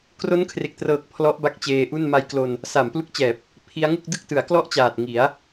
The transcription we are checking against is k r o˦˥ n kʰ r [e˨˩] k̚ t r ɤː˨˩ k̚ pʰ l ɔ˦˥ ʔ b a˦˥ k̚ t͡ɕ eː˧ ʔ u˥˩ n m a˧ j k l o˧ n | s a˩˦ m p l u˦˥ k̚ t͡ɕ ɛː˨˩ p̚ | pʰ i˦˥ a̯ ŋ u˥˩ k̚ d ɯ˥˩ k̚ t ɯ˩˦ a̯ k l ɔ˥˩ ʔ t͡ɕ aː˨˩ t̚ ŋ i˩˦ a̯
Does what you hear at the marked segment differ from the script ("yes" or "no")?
no